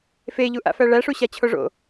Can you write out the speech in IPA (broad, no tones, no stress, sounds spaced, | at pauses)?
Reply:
f e ʎ u ʔ a̰ f æ ɭ æ ʂ u ɕ a t͡ɕʰ o ʐ o̰